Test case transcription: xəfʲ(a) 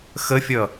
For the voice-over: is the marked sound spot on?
no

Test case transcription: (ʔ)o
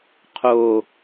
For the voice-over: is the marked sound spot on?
no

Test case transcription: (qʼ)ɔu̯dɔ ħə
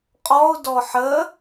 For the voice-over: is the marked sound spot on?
yes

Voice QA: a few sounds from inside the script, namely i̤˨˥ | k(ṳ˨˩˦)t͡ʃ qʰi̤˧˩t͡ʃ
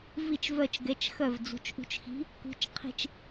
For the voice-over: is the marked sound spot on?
no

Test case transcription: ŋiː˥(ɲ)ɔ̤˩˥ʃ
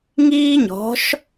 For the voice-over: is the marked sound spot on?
yes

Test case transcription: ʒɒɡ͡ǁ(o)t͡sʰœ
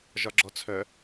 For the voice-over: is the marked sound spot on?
no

